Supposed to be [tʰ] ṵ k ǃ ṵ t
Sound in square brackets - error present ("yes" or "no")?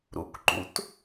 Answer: yes